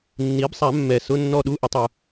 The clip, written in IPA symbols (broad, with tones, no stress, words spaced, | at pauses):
nːi˩˥bsˤa˨˩˦mːɛ˨˩ sʊ˧˥˧nːɔ˦˨ ɗu˧˥˧ʔɪ˨˩˦tˤu˨˩